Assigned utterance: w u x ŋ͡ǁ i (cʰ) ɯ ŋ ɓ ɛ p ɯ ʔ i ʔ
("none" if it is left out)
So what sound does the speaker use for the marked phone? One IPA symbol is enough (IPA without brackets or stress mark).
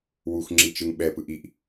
t͡ʃ